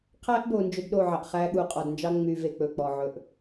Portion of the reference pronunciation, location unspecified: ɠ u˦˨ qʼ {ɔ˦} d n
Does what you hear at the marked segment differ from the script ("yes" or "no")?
yes